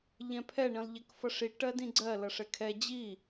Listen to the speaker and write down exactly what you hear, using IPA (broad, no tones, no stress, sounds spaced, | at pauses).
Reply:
ʎ ɛ̃ pʰ ɛ ɳ ĩ lˠ ʎ ɛ k f ʌ ʂ i ʈ ɜ d ĩ ɡ͡ǀ ɜ l ʌ ʂ ɛ kʰ ɛ d͡ʑ i